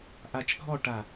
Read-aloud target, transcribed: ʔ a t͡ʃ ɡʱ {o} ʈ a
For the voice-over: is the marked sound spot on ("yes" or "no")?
no